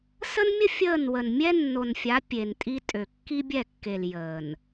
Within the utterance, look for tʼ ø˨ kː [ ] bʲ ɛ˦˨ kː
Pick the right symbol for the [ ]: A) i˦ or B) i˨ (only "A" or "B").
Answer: A